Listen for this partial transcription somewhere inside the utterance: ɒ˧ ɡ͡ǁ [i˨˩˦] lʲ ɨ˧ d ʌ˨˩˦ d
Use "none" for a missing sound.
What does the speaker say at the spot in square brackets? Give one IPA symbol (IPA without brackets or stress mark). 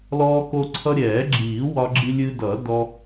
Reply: i˧